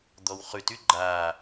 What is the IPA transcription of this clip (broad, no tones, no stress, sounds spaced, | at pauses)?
d̪ ɔ w χ ʉ t y ɡ͡ǃ a